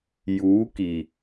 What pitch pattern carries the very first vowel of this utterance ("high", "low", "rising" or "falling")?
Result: rising